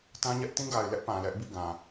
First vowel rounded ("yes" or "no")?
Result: no